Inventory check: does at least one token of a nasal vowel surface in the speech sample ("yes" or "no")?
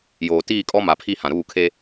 yes